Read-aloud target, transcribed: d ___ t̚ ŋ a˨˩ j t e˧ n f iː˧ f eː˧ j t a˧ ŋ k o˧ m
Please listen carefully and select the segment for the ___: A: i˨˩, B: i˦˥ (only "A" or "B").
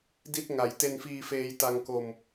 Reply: B